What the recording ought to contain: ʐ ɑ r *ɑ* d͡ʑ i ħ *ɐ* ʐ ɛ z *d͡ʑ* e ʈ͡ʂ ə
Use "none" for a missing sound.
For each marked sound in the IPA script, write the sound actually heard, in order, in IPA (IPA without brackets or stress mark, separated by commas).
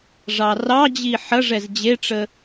ɑ, ɐ, d͡ʑ